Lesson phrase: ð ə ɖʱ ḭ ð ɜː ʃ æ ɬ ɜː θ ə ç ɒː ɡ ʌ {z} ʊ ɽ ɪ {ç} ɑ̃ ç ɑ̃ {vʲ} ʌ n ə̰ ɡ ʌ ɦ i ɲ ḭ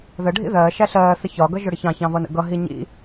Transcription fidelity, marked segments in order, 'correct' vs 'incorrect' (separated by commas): incorrect, correct, incorrect